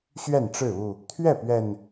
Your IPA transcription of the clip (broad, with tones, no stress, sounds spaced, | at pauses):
ɕ ɥ ɛ˥˨ n ʈ͡ʂ ɻ̩˥˨ u˥˨ | t̪ʰ ɥ ɛ˥˨ p ɥ ɛ˨˩ n